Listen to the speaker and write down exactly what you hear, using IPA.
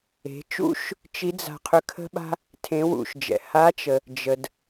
e̤˩˧t͡ʃṵ˥ʃ | t͡ʃi˧˥d͡za̤˧ qʰʏ˧˥kʰə̤˥ɓa̤˥ | tʰẽ˧˥wṵ˧ʃ d͡ʒɛ̰˩ ha˧˥t͡ʃə˩ | d͡ʒə˩d

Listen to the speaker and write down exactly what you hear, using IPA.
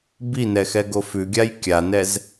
binɛxɛɡo fʉɡʲaj kʲanɛz

